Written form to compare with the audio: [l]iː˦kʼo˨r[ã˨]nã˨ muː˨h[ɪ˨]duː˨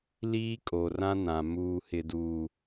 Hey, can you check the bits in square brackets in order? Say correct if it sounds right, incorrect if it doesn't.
correct, incorrect, correct

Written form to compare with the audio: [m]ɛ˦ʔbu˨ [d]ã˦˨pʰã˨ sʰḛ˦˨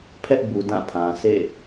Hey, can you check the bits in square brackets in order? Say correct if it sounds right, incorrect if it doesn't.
incorrect, correct

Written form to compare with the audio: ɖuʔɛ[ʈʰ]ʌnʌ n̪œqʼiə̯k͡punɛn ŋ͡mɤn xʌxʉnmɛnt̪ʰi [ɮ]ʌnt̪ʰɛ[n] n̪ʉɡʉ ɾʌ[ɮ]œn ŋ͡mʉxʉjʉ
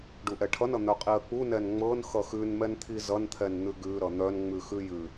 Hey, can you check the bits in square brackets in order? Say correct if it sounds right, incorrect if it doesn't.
correct, incorrect, correct, incorrect

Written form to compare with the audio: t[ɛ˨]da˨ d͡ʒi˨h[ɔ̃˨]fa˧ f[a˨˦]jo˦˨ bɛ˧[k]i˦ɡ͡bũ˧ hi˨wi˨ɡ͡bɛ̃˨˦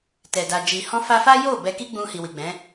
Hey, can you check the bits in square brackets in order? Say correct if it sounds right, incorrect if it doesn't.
correct, incorrect, incorrect, correct

